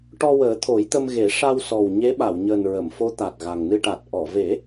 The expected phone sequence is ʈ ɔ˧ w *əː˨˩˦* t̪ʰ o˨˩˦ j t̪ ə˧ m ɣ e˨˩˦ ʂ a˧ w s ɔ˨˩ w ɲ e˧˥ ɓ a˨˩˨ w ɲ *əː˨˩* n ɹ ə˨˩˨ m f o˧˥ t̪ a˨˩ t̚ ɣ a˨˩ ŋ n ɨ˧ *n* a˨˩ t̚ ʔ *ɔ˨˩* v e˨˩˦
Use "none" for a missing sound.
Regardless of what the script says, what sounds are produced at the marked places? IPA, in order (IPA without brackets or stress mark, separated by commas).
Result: əː˨˩˦, əː˨˩, ʈ, ɔ˨˩˨